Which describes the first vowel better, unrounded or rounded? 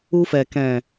rounded